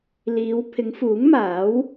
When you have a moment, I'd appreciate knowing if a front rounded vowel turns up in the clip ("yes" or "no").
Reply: no